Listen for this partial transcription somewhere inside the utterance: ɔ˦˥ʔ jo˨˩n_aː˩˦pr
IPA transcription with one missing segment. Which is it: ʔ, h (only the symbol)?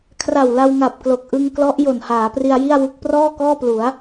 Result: h